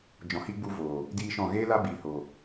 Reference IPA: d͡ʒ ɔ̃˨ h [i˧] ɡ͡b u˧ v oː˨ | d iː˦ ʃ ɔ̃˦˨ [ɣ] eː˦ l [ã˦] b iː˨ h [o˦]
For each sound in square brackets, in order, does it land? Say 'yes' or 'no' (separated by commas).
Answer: yes, yes, no, no